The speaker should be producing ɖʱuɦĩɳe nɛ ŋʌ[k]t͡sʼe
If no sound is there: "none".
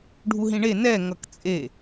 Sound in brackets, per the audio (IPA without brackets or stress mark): k